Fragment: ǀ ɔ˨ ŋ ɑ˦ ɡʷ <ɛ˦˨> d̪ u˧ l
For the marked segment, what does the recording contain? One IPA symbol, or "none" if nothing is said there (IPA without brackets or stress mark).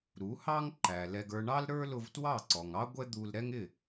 ɛ˦